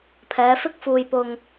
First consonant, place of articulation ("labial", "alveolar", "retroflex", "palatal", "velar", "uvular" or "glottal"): labial